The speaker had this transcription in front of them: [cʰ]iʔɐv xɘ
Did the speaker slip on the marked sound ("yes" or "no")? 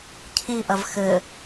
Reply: no